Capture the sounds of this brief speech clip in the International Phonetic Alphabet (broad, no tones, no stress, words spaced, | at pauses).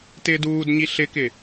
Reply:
tɪːduːdɲi ɬɪkɪ